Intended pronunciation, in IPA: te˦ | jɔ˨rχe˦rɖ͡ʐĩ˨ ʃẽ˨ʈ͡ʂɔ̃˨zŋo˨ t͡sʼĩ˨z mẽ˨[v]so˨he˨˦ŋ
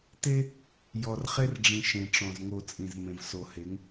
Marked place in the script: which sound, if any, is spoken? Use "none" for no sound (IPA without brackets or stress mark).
v